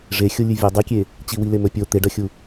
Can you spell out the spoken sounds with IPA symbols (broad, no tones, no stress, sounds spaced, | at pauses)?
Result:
ʐ e xʲ o lʲ ʉ vʲ e dˤ i kʲ e | t͡ɕ i w i l e m ɵ pʲ o t̪ e ɖ ɐ xʲ u